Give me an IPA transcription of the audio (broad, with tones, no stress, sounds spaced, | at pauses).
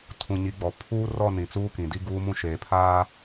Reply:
tʰ ũ˨ ɲ i˨˦ ɡ͡b ɔ˨ pʰ uː˦ r ɔ˦˨ n ĩ˨ t͡s uː˦ k ĩ˨ d i˦ ɡ uː˦ m ũ˦ ʃ eː˨ pʰ aː˦